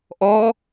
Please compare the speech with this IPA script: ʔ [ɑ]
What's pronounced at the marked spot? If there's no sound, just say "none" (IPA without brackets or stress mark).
ɔ